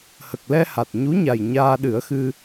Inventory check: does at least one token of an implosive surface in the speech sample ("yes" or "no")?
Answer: yes